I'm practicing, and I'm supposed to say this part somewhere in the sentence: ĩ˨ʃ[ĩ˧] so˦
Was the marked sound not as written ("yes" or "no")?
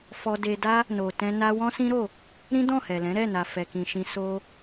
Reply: no